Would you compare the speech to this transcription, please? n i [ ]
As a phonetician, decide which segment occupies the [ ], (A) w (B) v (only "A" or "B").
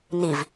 B